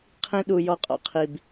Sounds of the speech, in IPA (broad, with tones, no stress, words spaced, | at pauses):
qʰĩ˦ɗu˧ jɔ˧qʼɔ̰˧qʰi˨b